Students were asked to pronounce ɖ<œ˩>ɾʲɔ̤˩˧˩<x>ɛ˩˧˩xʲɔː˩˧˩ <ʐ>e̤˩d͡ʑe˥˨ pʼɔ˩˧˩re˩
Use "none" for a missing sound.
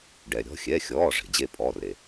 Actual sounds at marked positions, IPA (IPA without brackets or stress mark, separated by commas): ɛ˩, xʲ, ʐ